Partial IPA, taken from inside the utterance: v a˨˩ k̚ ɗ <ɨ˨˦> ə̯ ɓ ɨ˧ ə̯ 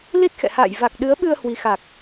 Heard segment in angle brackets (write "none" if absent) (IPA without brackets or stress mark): ɨ˨˦